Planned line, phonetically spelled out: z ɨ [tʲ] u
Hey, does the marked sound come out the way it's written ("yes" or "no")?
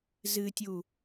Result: yes